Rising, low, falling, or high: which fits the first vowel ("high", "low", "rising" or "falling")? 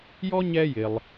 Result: high